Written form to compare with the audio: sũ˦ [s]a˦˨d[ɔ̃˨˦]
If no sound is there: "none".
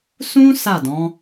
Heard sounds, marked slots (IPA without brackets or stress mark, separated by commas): s, ɔ̃˨˦